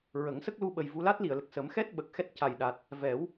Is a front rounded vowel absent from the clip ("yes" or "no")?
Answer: yes